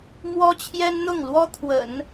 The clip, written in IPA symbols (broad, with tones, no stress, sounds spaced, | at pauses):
m w ɔ˥ t͡ɕʰ j ɛ˥ n n̪ ʊ˥˩ ŋ l w ɔ˥ t̪ʰ w ə̰˨˩˦ n